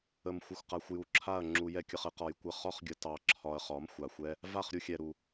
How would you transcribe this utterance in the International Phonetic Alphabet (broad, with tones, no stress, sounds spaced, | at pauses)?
ə˨ m xʷ ə˨ xʷ q a˨ xʷ j u˨ ǁʰ a˦˨ ɐ̯ ŋ͡ǁ u˧ j ɛ˦ kʲ ə˧ χ ə˦ q ɒ˨ j kʷ ə˧ χ ɒ˦ χ ɡʲ ə˧ t ɑ˧ ǁʰ ɒ˧ ɐ̯ χ ɒ˨˦ m xʷ a˨ xʷ ɛ˦ | v a˦˨ χ ɾʲ u˧ xʲ ɛ˨ ɾ u˨